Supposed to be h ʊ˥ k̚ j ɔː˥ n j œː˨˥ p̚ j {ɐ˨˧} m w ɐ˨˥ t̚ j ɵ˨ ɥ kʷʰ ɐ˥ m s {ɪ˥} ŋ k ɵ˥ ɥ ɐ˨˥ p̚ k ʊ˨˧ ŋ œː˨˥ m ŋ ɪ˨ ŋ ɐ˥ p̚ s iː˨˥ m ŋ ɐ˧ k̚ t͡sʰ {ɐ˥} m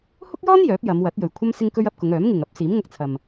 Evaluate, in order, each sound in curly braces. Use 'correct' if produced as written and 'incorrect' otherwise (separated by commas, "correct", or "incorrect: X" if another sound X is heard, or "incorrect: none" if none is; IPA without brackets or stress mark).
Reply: correct, correct, incorrect: ɐ˨